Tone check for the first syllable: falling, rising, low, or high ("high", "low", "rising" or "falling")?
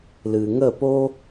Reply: low